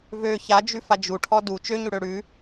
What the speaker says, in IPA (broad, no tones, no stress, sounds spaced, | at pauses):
v ø ç a d͡ʒ ʉ f a d͡ʒ u ʈʰ ɔ d u t͡ʃ ø ɲ ʉ ɽ ø ɽ ʉ